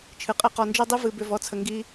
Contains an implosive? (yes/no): no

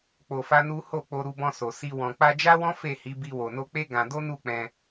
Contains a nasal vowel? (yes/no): yes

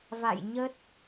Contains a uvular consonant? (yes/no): no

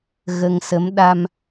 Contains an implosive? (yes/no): yes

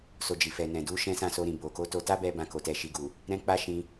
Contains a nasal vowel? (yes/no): yes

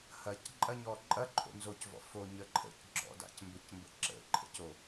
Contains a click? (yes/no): yes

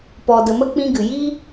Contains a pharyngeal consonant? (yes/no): no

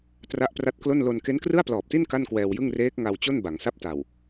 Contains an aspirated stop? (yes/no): no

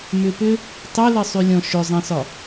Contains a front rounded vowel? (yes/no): yes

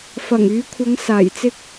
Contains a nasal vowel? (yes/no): no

